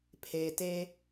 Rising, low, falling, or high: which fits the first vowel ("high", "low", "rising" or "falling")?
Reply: low